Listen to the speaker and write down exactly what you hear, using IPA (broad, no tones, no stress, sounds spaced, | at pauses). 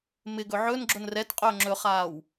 m ɪ ɡ ɵ ʕ ɵ n ɡ͡ǁ ʊ n r ɛ t qʼ ɵː ŋ͡ǁ ɵ χ aː w